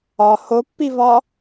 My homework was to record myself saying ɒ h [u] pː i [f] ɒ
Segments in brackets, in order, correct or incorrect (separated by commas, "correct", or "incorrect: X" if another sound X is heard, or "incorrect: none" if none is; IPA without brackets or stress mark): incorrect: o, incorrect: v